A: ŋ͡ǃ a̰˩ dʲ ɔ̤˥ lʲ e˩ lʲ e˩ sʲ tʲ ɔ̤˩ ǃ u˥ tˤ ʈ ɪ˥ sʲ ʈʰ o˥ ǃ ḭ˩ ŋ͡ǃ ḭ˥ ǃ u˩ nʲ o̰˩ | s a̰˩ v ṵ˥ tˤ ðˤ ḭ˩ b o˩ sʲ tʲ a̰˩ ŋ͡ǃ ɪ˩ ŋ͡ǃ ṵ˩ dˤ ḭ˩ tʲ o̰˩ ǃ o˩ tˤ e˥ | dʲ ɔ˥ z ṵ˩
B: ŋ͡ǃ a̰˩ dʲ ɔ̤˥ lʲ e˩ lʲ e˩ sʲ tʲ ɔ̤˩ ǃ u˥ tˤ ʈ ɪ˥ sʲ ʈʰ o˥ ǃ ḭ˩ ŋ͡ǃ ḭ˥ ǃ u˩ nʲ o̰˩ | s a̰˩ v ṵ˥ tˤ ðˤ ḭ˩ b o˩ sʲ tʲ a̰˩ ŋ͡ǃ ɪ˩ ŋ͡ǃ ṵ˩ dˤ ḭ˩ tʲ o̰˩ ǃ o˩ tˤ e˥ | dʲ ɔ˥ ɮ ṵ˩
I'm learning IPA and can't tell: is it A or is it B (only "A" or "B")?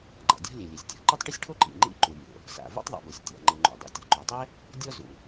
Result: A